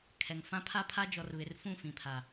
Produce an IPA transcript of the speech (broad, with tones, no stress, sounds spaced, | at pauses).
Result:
kʰ ɛ˨ ŋ f ã˦ pʰ a˦ pʰ a˦ d͡ʒ ɔ˨ r β ɪ˨ r f ũ˦˨ f ĩ˨ pʰ a˨